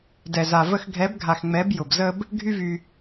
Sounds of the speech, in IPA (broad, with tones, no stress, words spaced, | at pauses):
dɛ˨za˨ və˧xɡʱɛ˨˦bɡʱa˨xŋ͡mɛ˨˦b jʊ˨bzə˦b | ɡʱy˦vy˧